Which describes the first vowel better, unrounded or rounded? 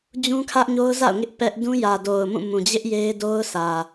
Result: rounded